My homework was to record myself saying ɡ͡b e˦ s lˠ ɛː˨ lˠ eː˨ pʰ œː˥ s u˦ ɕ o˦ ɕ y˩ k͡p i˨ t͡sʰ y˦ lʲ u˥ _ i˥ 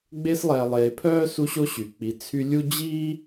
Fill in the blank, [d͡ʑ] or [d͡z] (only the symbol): d͡ʑ